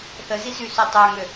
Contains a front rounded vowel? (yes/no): yes